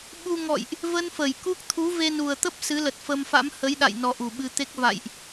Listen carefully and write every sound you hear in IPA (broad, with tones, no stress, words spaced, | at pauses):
ɓu˧ŋɔ̰˧˨jʔ | və˧n fə˧˩jku˦˥k̚ t̪ʰu˨˦ve˧nu˨˩ə̯t̪ə˦˥p̚ sɨ˨˦lə˨˩t̚fə˧m fa̰˧˥mhə˨˦jɗa̰˧˨j nɔ˧ʔu˧˩ɓɨ˧t̪e˦˥k̚ va̰˧˨jʔ